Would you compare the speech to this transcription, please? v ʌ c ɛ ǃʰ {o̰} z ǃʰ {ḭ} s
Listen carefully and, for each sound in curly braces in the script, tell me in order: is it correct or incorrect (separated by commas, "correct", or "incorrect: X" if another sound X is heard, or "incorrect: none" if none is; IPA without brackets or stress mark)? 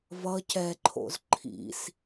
correct, correct